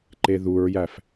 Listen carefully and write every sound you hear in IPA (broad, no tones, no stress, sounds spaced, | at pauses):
ǃ e ð u ɹ j æ f